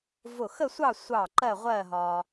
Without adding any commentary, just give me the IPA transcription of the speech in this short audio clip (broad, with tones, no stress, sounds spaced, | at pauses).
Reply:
v ʊ˧˩ x ə˥˧ sʷ ɑ˥˧ sʷ ɑ˧˩ ǃ ɜ˥˧ ʁʷ ɜ˥˧ ɦ ɒ˧